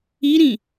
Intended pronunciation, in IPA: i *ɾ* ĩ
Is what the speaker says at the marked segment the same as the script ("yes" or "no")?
yes